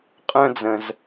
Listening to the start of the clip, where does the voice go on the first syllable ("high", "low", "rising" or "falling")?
high